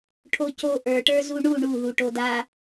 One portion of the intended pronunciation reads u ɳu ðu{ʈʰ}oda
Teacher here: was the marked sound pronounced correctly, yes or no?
no